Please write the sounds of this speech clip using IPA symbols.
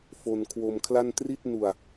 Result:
f o˧ n kʰ w o˧ m kʰ l a˥˩ n t r i˥˩ t̚ n u˧ a̯

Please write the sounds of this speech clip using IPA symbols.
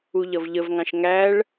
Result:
u ʎ ʌ v ʎ ə v ŋ ɑ̃ ʃ ŋ æ ɭ

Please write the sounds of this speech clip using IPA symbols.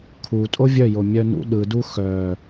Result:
kʰ u tʼ o vʲ œ j o mʲ œ n ṵ ɗ ɯ d u x œ

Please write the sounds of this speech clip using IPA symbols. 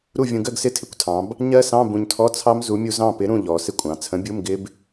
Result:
ɾ u˥˨ vʲ ũ˧ ɡ ɜ˥˨ ɡ s ɪ˧˥˧ tʰ ɪ˧˥˧ kʷ tʰ ɑ̃˩˧ b | ɲ ɜ˦˥ s ɑ̃˧˥˧ b ũ˧ ɲ tʰ ɔ˧˥˧ t͡sʰ ɑ˦˥ m z u˨˥ mʲ u˧ z ɑ̃˥˨ p ɪ˨˥ ɾ ũ˥˨ ʎ ɔ˩˧ s ɪ˥˨ kʷʼ ɑ̃˩˧ t͡sʰ ə̃˨˥ bʲ u˧˥˧ m ɡ ɪ˦˥ b

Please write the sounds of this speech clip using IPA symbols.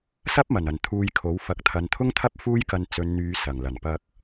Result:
s ɐ˥ p̚ m ɐ˨˩ n ɐ˨˩ n t̪ʰ uː˧ j kʰ o˨˥ w f ɐ˨ k̚ t̪ʰ ɐ˨ n t̪ʰ ʊ˥ ŋ t̪ʰ ɐ˥ p̚ f uː˥ j k ɐ˧ n t͡s ɵ˨˧ n n̪ yː˨˧ s ɐ˨˩ ŋ l ɐ˨˩ n p ɐ˧ k̚

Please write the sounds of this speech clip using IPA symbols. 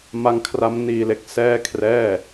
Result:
m a˦˥ ŋ kʰ r a˦˥ m n iː˧ l e˥˩ k̚ s ɛː˥˩ kʰ r ɛː˥˩

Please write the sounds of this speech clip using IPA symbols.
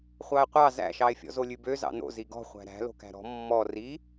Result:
χʷ ɑ e̯ qʷ ɑ z æ̰ ʃ ɑ e̯ fʲ ɔ̰ z o lʲ ʉ b ø z ɑ̰ n o̰ z i ɡ ɔ̤ χʷ æ̤ ɾ æ̤ l o̤ k æ̤ ɾ ɔ̤ mː ɔ r i

